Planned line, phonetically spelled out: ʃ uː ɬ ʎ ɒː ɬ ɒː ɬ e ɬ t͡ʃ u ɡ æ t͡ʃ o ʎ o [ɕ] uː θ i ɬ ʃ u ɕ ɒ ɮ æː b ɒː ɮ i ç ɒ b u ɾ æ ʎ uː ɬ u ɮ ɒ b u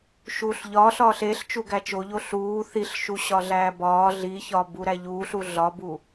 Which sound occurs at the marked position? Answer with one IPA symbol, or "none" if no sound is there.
ɬ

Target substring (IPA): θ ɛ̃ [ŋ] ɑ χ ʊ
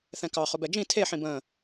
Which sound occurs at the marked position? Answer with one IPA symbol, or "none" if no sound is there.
k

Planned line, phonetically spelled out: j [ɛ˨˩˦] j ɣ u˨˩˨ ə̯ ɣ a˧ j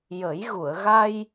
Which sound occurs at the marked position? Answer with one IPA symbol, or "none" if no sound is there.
ə˨˩˦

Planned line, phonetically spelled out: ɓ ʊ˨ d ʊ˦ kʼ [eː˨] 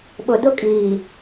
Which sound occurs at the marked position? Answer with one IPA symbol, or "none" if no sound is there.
iː˨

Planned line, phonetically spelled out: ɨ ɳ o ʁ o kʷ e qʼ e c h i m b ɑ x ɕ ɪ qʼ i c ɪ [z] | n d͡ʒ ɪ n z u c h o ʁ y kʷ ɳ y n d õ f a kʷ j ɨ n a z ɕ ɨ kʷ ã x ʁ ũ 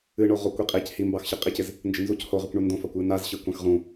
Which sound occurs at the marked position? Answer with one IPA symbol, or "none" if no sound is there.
z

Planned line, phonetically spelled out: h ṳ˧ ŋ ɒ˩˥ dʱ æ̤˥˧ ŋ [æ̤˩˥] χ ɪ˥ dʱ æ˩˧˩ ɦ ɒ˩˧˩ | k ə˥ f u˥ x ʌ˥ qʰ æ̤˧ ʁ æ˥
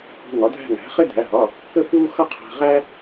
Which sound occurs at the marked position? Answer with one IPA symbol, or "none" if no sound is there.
æ̤˩˥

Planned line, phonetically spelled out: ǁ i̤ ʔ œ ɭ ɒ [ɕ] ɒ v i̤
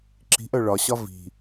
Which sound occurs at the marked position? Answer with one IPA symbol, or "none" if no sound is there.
ɕ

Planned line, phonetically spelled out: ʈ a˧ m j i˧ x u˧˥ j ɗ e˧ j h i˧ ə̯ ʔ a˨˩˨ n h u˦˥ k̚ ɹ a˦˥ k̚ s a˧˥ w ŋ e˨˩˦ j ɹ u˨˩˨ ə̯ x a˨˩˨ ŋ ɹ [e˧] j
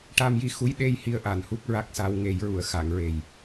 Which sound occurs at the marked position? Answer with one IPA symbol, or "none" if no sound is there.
e˨˩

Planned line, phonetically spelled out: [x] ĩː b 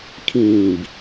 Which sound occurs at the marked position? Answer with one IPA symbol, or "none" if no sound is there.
kʰ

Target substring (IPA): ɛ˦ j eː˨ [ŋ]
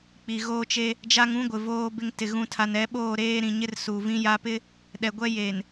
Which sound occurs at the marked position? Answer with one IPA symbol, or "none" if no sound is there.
n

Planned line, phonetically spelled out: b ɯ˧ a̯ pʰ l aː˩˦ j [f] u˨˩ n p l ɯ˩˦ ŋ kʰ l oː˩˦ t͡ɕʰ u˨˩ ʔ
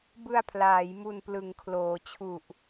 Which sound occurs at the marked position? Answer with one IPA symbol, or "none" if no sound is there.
m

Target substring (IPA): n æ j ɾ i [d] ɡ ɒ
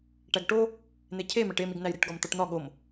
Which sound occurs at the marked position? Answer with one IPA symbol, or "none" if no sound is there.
ʈ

